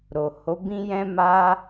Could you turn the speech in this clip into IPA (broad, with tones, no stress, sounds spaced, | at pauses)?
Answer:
ɾ o˨ h o˨˦ b ĩ˦ j ɛ̃˦ m a˦